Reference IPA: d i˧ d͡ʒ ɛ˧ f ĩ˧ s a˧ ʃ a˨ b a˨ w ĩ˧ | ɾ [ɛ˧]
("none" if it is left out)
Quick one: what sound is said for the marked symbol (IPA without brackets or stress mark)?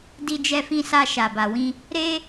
e˧